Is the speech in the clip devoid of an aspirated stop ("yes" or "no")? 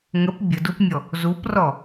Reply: yes